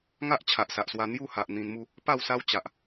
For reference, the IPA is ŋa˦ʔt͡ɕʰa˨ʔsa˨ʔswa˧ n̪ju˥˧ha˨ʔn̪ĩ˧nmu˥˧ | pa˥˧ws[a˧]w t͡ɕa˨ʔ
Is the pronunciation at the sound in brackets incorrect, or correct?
incorrect